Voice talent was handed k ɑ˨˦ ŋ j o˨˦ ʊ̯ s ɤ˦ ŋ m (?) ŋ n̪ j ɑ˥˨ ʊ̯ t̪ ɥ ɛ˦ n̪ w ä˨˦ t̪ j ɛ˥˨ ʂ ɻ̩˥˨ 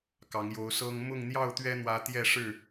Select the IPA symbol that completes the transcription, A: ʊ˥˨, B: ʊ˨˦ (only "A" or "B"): A